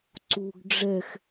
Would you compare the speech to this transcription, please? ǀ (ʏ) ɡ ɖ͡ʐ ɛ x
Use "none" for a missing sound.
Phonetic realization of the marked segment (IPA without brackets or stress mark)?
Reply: u